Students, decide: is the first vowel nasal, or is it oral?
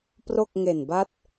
oral